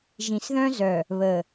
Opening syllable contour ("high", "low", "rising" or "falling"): low